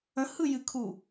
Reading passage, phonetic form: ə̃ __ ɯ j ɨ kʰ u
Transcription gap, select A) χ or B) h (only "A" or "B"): B